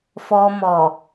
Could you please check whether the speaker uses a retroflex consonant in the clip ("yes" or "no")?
no